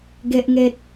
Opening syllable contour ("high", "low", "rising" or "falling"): high